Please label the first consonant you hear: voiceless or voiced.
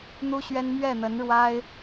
voiced